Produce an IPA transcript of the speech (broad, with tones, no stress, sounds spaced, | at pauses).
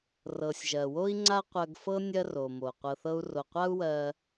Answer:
r ɤ˩ sʲ ʒ ɜ˩ w o˥ i̯ ŋ͡ǀ a˥ qʷ ɜ˧ ɡ f ɤ˥ nʲ ɜ˥ r o˩ m o˩ qʷ ɤ˧ θ ɤ˥ u̯ r o˧ qʷ a˥ u̯ w ɜ˧